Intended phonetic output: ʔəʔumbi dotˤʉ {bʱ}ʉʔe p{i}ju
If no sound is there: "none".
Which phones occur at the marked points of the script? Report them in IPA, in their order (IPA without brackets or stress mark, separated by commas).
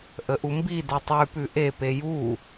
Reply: p, e